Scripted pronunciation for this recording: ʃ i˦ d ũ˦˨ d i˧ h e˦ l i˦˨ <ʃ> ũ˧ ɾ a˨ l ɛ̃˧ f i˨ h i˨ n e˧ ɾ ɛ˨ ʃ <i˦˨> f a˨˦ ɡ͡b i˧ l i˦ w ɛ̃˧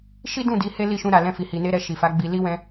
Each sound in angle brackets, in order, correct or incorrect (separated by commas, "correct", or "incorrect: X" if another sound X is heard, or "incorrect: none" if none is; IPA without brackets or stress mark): correct, incorrect: i˨